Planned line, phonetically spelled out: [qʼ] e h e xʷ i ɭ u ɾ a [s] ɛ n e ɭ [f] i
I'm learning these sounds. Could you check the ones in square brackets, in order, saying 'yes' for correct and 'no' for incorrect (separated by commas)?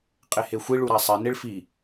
yes, no, yes